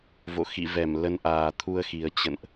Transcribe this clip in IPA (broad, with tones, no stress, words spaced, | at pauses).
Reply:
vo̰˧˨xḭ˧˨vɛ˧˩m lə˨˦nʔaː˨˩ t̪ʰu˧ə̯xi˨˩ə̯ t͡ɕə̰˧˨nʔ